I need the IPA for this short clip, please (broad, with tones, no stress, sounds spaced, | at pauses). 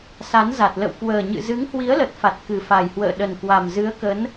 s a˨˦ n z a˨˩ t̚ l ə̰˧˨ w k w əː˨˩ ɲ ɨ̰˧˨ z ɨ˨˦ ŋ h w i˨˦ ə̯ l ə˨˩ t̚ f a˨˩ t̚ k ɨ˨˩ f a˨˩ j h w ə̰ː˧˨ ɗ ə˨˩ n k w a˨˩ m z ɨ˨˦ ə̯ k ə˨˦ n